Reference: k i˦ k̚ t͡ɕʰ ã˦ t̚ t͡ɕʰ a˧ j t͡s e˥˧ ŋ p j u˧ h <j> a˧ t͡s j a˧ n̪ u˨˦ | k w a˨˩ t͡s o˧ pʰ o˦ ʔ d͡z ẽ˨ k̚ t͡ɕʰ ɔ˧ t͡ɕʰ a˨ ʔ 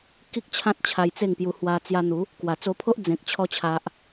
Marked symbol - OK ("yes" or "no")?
no